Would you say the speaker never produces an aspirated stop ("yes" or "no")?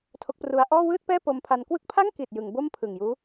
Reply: no